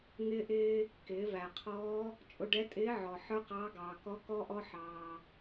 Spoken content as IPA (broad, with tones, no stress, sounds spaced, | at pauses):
ŋ ɪː˥ ʔ ɪː˥ | k ɪː˩˧ v æ˩ qʰ ɔː˧˥ | t͡ʃʼ ʊ˧ ɖ ɛ˧˥ tʼ ɪː˧˥ ʕ ɔ˩ ħ ə˞˥ q ɑː˧˥ ɡ ɑː˩ k ɔ˧˥ k ɔ˥ ʔ ɔ˥ ħ ɑː˩